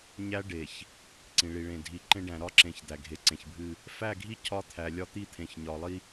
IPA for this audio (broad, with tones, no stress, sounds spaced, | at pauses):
ɲ æ˦ ɖ e˨ ç | ǀ ĩ˨ ɭ i˨ ɭ ẽ˨ dʱ i˨ ǃ ẽ˦ ɖ æ̃˨ ɾ ɒ˦ ǁ ẽ˨ ç d̪ æ˨ ɡʱ e˨ ǀ ẽ˨ ç bʱ ɨ˦˨ | f æ˦˨ ɡʱ i˦ cʰ ɒ˦ t̪ʰ æ˨ lʲ ɒ˦ t̪ i˦ t̪ʰ ẽ˨ ç ɲ ɒ˨ lˠ i˦